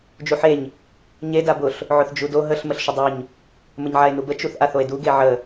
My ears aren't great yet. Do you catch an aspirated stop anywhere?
no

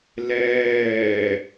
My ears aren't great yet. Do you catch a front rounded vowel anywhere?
no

